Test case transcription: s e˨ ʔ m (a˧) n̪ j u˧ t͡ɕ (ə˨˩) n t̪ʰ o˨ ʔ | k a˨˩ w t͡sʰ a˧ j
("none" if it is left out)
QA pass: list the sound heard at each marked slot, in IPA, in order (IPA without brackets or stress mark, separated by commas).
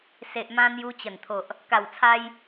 ã˧, ə˨˩